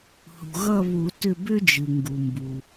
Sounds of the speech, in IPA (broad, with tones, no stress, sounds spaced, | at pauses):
h ṳ˩ ɣ ʌ˦˨ β u˨˩˦ t ʏ˦˨ b ʏ˥ d͡ʒ ɨ˩ ŋ ɡ u˩ m b u˩